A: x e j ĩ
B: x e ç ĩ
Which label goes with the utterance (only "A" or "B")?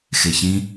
B